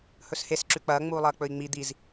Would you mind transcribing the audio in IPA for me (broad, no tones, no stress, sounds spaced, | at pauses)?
h ɵ s h e s ǁ ʉ k͡p ɐː ŋ͡m uː lˠ ɐː k͡p ɵ i̯ ŋ͡m i d̪ i z